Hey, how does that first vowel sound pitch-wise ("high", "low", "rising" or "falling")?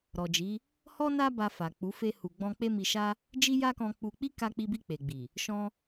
low